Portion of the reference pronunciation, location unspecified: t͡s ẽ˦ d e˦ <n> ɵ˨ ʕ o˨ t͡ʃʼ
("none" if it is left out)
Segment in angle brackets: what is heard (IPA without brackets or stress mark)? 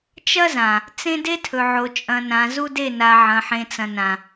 tʰ